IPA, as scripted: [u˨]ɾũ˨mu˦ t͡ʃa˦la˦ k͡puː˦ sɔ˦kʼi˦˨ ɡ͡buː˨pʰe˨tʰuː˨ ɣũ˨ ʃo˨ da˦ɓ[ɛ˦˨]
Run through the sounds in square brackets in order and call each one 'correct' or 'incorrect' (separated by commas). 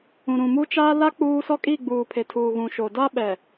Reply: incorrect, incorrect